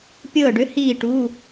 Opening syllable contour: falling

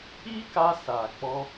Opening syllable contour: high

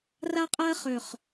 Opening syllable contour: high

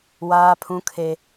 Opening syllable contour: high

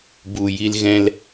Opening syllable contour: low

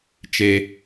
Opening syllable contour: high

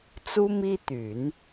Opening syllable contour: high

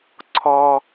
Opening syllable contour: high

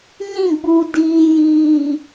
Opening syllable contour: falling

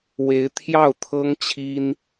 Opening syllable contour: rising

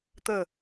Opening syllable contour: falling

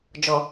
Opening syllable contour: low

